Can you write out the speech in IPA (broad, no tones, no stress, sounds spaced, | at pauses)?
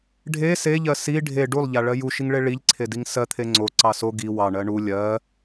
ɖʱ e s e ʎ ɜ s i ɖʱ e ɖ u lˠ ʎ a ɭ ɜ j u ʃ i ŋ ɭ e ɭ i ʎ ǀʰ e d i ŋ s ɜ t̪ʰ e ŋ͡ǀ o ǀ ɑ s o ɡ i w ɑ ɳ ɜ ɳ u lʲ ɜ